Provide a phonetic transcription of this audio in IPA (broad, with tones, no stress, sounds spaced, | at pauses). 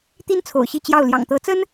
t̪ i˥ n t͡sʰ o̰˨˩ ʊ̯ ɕ i˥˧ t͡ɕ j ɑ˥˩ ʊ̯ l j ɑ̰˨˩ ŋ t̪ ɤ˧˥ t͡s ə˥ n